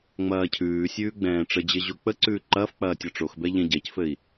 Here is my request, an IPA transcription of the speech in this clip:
ŋ͡m ɐː cʰ ʉː sʲ ʉː ɡ͡b ɛ̃ː ʈ͡ʂ ə d͡ʑ ɘ ʑ o k͡p ə ǀ ʉː ǃ ɐː f k͡p ɐː tʲ ɔ ʈ͡ʂ o x b ɛ ʎ ɛ̃ ɟ ɛ c f ɘ i̯

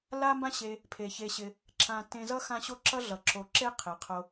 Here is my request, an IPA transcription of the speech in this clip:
l a˦ m b ã˦ ɕ e˧ | pʰ e˨ ç e˧ ɕ ɪ˧ | ǁ ã˧ t ẽ˧ z ʌ˦ x ã˦ ɕ o˦ ǁ ʌ˦ ɮ ʌ˨ ǁ o˨ ǁ e˦ qʰ ɪ˨ qʰ o˧

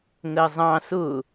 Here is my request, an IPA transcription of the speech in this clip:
ŋ ɜ zˤ ɑ̃ s ʊ

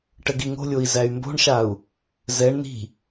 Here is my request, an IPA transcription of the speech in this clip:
ʈ ə ɡ i ŋ o̤ lʲ o i̯ z æ y̯ m b o̤ ɳ ʃ a u̯ | z ɛ ɳ n i̤

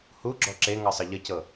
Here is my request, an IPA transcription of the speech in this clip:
h u ɡ͡ǁ ɔ ǁ e ŋ ɤ sˤ ʌ ʎ ə c ɤ

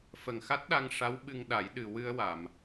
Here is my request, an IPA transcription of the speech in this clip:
f ə˨˩ ŋ x a˦˥ t̚ ɗ a˧ ŋ ʂ a˧˥ w ɓ ɨ˧ ŋ ɗ a˨˩˦ j ɗ ɨ˨˩ w ɨ˧ ə̯ w a˨˩˨ m

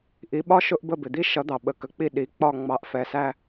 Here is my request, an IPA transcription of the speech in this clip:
ʔ i˨˥ ɓ ɒ˥ ʃ ʊ˥ ʔ b ə˦˨ b ɪ˩ d̪ i˥ ʃ ʌ˨˥ d̪ ɑ˩ ɓ ə˩ k ə˩ k͡p i˦˨ ɗ i˩ k͡p ɒ˦˨ ŋ͡m ɑ˨˥ ʔ f ɛ˩ s æ˦˨

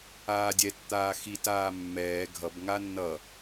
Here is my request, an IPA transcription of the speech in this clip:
aː dʲ ɛ t t̪ aː x i t aː mː ɛː ɡʱ ʌ b ŋ a nː ʌ

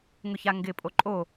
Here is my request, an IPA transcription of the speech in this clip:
ŋ ʊ ç a ŋ ɡ ɪ pʼ o ǃʼ o

